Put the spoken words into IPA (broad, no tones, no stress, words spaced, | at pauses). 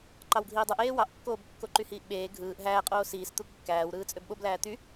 ǃɑwɡʱiːdˤɯʔ eːwɑʔkːoːb kːoǃyhiːʔɓeː ɡʱɯːʔ ɦæːqʼoː siːs t̪ukːæːwɾɯːt͡sʼøb ɓoblæː t̪y